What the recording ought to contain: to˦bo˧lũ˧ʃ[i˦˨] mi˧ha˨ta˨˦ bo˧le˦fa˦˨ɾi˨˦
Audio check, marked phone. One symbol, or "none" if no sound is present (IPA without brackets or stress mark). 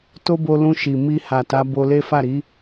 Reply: i˨